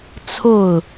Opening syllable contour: falling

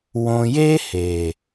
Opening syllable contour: low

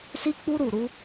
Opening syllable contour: high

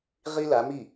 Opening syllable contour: high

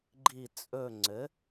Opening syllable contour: falling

